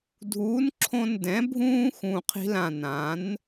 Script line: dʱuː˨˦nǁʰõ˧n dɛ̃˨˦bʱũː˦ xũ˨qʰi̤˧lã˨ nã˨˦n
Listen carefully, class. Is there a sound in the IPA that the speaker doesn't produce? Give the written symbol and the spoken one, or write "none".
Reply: none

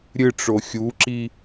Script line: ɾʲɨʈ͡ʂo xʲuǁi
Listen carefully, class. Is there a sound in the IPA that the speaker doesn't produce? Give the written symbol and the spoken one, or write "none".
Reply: none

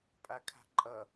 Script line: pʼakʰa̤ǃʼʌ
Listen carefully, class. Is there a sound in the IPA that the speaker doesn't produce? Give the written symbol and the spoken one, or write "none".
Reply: none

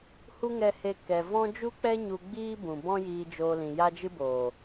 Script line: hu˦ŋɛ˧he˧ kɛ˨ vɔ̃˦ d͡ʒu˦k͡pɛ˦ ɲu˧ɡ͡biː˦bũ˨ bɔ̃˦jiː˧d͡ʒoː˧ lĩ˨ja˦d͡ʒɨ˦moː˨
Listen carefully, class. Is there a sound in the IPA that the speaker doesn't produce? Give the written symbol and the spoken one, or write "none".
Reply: m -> b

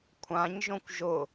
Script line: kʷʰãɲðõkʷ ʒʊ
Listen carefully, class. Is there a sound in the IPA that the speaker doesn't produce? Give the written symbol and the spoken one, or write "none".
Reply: ð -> ʒ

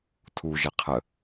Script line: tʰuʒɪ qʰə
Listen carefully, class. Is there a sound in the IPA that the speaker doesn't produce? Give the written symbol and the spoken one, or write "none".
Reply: none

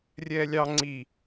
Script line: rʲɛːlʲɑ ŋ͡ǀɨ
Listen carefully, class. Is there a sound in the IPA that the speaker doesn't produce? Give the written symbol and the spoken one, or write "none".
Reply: ɨ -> i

